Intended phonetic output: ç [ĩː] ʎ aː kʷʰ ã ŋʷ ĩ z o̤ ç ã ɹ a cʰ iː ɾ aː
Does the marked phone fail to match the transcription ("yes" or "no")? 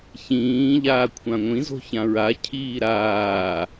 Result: no